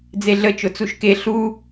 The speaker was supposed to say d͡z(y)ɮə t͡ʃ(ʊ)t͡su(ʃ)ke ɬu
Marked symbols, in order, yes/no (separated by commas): no, yes, yes